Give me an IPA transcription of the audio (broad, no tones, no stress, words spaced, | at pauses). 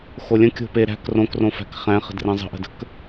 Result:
xolʲə̃ kʲo̤pe ɾæ̤k rõkrõfæ̤k χæ̃χə̤drẽ zˤə̤ʔə̤də̤k